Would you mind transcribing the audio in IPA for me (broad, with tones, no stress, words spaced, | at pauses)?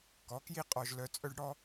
kɔ˨˦kji˦ qʼɔ˧ʒlœ˧t͡sʼœ˦ɖ ɽɔ˦